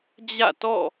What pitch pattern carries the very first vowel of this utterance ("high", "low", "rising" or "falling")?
falling